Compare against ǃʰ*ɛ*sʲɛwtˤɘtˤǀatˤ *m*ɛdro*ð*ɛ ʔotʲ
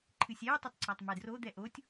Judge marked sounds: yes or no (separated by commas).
no, yes, no